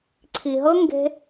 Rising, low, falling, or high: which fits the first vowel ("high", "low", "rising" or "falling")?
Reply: low